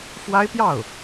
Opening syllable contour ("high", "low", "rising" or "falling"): high